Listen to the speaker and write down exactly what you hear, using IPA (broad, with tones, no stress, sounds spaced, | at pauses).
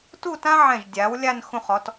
t u˥˧ t ã˥ ʕ ɛ̃˧˩ ʒ dʲ a˩˧ w lʲ a˥˧ n x ũ˧˩ χ ɔ˩˧ t